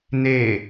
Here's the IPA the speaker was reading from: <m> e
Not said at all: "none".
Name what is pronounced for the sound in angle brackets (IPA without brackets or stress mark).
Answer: n